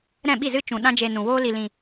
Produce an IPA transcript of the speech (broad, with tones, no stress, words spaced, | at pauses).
ɾɛ̃˦˨ɓi˦˨zɨ˦t͡ʃũ˨ ɗã˦d͡ʒe˧nũ˨ woː˦li˧lĩ˧